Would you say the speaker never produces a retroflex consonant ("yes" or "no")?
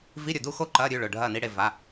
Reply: no